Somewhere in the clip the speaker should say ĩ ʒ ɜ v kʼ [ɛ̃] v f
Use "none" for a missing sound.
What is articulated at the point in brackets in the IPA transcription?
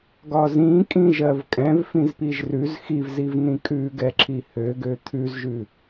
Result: ɛ̃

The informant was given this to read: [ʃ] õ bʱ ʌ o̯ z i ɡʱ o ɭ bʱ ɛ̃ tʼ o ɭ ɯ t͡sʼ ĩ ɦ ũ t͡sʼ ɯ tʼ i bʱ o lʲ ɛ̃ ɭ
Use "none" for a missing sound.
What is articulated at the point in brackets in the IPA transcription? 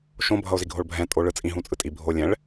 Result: ʃ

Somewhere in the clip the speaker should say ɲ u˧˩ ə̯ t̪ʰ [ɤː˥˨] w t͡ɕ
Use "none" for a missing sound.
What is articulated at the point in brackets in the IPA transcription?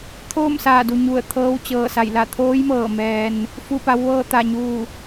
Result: ɤː˧˥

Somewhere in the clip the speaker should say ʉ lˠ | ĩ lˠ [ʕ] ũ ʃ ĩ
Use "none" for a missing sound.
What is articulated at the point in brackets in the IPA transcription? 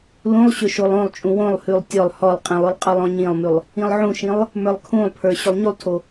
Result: ʕ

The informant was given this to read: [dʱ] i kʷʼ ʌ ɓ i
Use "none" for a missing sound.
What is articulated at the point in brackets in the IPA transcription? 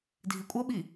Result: dʱ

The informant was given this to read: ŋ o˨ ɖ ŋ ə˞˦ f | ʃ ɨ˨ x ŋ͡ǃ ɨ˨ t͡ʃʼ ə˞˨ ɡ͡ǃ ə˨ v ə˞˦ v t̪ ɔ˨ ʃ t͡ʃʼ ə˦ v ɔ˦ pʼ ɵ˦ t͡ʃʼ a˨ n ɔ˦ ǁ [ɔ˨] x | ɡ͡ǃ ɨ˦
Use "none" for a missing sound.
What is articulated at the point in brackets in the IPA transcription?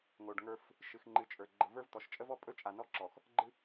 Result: ɔ˨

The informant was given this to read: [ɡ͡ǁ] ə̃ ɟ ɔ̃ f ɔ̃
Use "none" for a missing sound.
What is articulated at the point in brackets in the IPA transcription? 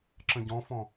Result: ǁ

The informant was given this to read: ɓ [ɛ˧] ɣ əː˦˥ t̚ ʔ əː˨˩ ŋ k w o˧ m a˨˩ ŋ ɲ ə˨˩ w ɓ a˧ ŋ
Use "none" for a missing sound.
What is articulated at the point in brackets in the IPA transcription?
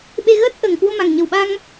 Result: e˧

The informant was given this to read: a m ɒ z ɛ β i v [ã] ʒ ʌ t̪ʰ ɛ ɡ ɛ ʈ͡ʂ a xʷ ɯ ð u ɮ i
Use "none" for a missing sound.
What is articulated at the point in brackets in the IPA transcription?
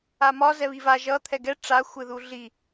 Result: a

